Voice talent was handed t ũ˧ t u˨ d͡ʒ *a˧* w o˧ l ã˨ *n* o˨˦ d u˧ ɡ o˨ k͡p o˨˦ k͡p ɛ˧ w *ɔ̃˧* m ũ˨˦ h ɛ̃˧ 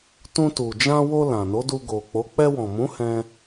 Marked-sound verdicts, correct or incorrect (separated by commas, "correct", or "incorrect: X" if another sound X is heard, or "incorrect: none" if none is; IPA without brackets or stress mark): incorrect: ã˧, correct, incorrect: ɔ̃˨